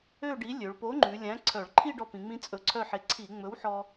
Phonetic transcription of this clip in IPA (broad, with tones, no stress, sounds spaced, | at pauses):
ø˥˧ ɖ i˨˥ lʲ ø˩˧ ɭ p o˨˥ ŋ͡ǃ ʉ˩˧ lʲ æ̃˨˥ ǀʰ œ˧˩˧ ɭ ǃʰ i˥˧ ɖ ɔ˧ p ĩ˩˧ ŋ͡m ĩ˧ t͡sʼ ɵ˧ ǀʰ œ˥˧ ħ e˧ ǀʰ i˧˩˧ ŋ͡m ɵ˨˥ w ħ ɔ˧